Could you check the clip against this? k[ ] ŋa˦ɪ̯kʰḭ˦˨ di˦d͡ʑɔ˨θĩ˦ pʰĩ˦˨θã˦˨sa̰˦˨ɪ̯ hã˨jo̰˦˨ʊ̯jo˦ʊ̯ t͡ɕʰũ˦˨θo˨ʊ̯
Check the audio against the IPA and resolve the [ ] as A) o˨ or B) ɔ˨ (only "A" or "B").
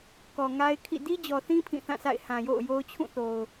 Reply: B